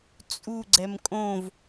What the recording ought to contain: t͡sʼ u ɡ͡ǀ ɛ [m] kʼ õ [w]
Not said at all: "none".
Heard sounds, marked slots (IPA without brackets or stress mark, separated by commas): m, v